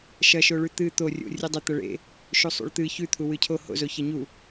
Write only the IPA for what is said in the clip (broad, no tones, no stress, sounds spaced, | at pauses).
ʃ ɐ ʃ o ɭ ʉ t̪ ɨ t̪ o rʲ o̰ rʲ ɨ dˤ ʉ t̪ ɐ ɭ ḛ | ʃ u sˤ ṵ ɭ t̪ ɨ ç ʉ t̪ʰ u w ɨ cʰ o h o̰ z o ç ɐ ɲ u